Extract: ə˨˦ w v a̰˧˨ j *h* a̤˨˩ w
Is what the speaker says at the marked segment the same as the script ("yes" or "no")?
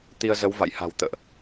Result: yes